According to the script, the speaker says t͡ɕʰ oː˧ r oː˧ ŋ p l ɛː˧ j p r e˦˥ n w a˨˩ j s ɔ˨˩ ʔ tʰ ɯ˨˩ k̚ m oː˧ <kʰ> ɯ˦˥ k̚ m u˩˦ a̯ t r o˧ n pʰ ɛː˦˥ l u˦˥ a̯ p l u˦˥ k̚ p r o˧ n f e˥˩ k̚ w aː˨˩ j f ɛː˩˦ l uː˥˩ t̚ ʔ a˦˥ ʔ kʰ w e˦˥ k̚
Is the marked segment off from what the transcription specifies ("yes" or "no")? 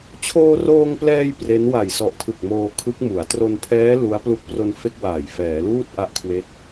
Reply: no